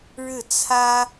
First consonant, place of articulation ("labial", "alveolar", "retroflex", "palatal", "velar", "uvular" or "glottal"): retroflex